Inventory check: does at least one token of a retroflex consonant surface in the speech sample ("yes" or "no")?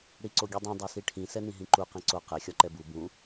yes